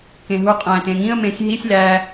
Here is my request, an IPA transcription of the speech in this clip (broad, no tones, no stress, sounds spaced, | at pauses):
k ẽ ɦ u qʼ æ̃ t ẽ ŋ ĩ ə̯ m ẽ sʲ ɦ i sʲ l æ